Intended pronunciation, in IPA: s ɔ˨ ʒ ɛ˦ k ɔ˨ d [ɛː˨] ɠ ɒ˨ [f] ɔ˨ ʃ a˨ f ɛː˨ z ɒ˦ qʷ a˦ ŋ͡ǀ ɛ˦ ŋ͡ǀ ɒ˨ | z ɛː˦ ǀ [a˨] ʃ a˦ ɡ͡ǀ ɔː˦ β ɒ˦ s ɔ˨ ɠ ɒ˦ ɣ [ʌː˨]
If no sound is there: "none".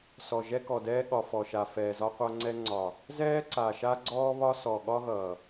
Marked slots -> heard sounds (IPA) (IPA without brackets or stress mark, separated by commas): ɛː˦, f, a˨, ʌː˨